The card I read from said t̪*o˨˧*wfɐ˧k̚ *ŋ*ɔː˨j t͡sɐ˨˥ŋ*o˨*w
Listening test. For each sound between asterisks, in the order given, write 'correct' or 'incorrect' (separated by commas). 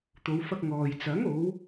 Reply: correct, correct, incorrect